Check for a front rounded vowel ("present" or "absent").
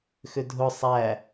present